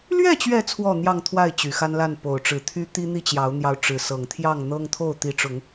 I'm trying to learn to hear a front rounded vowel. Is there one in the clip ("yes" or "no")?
yes